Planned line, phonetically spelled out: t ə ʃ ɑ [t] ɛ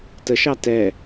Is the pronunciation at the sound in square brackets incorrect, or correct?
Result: correct